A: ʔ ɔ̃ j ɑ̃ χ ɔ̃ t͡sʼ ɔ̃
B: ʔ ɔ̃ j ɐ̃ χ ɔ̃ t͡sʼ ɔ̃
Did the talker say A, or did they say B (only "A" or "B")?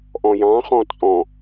A